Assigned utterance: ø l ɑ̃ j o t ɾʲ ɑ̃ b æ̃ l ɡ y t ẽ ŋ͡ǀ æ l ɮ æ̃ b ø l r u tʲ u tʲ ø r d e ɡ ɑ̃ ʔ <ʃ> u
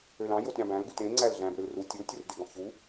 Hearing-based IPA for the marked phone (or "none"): ç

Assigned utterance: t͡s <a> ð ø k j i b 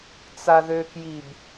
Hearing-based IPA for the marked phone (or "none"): a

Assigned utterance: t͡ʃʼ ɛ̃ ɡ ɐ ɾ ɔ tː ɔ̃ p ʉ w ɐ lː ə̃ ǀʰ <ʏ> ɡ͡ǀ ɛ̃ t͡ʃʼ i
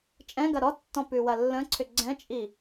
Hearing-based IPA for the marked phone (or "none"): ʏ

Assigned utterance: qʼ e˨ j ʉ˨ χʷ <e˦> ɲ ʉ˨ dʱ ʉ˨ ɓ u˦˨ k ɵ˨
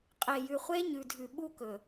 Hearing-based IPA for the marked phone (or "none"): e˦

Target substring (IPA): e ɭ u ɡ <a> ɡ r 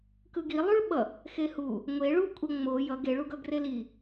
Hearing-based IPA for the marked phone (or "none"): ʌ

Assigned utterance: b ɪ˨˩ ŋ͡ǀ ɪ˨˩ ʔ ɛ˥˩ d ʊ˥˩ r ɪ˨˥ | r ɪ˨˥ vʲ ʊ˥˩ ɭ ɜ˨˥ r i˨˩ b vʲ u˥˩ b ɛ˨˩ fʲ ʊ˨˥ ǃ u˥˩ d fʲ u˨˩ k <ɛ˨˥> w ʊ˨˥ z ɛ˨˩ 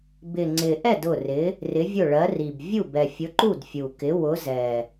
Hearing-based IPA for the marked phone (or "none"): ɪ˨˥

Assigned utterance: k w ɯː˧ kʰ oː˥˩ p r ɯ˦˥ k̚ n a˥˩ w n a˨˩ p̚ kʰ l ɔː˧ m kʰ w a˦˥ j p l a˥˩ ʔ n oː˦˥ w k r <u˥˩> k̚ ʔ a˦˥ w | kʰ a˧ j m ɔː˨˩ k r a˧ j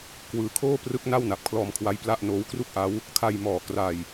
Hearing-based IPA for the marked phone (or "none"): u˥˩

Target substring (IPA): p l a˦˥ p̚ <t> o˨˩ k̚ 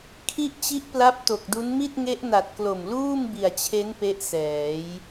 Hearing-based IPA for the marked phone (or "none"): t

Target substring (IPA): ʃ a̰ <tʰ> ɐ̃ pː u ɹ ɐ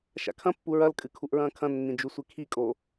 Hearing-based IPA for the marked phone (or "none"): kʰ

